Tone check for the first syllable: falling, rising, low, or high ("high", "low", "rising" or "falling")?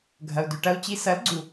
low